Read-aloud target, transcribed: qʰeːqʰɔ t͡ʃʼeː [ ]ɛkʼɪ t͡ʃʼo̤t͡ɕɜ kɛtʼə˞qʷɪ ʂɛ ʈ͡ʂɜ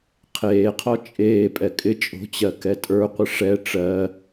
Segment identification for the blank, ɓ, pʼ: pʼ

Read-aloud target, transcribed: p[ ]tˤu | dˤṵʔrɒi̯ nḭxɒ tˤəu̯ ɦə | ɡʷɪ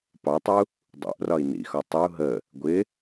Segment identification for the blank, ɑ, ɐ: ɑ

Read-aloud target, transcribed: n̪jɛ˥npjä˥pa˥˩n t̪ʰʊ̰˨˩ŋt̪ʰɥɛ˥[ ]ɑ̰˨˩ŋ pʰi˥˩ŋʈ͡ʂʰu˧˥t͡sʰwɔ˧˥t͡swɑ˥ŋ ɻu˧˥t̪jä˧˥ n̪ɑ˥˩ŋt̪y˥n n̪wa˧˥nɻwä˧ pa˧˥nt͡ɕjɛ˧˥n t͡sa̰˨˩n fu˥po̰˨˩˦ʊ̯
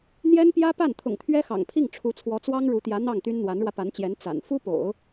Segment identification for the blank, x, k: x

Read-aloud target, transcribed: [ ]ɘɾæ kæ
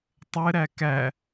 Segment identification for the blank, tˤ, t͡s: tˤ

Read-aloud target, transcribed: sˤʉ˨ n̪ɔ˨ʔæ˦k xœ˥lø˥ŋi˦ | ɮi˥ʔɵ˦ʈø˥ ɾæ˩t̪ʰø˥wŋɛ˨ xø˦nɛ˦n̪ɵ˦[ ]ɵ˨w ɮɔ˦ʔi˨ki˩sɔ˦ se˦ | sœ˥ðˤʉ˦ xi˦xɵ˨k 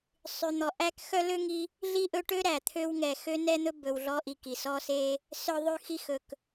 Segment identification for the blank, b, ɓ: b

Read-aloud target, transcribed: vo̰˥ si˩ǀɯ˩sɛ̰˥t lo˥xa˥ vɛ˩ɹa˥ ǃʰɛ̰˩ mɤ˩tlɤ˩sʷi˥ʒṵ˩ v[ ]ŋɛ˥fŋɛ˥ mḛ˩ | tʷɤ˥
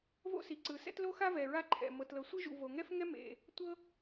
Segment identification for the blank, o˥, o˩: o˩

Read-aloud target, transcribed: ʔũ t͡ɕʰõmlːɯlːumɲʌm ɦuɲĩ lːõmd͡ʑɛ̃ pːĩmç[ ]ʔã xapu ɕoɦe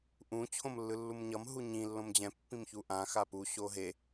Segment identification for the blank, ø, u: u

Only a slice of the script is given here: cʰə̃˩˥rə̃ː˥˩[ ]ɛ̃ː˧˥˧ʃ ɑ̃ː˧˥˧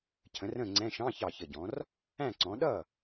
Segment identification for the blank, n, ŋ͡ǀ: ŋ͡ǀ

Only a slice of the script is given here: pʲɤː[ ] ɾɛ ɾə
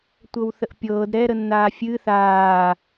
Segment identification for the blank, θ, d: d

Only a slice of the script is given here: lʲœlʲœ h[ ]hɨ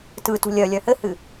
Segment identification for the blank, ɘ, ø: ɘ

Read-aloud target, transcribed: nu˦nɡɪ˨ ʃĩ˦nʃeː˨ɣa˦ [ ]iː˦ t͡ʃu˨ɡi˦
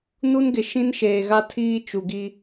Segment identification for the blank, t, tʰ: tʰ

